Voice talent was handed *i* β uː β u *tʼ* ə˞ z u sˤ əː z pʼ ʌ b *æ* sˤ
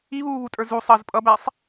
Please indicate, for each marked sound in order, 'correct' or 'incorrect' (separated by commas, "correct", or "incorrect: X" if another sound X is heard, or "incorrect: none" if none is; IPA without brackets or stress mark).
correct, correct, correct